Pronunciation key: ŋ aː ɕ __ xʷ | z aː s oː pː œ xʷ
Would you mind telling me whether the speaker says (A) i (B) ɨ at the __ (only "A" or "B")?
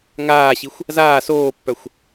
A